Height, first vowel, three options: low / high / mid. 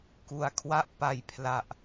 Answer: high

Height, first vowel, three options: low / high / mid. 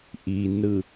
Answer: high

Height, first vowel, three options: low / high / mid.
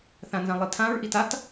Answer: low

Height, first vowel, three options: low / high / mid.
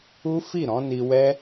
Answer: high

